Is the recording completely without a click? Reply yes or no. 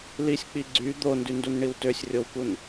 no